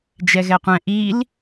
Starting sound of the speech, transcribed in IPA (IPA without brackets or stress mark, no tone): d͡ʒ